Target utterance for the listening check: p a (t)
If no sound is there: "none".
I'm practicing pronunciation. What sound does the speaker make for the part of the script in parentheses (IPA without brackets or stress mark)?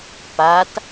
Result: t